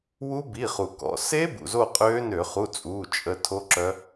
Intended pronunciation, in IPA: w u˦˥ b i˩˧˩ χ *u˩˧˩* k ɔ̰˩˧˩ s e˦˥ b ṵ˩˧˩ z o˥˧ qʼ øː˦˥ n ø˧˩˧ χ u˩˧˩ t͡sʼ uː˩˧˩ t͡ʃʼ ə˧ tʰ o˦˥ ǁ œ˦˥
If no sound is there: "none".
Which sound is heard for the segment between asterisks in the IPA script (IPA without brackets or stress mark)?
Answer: u˩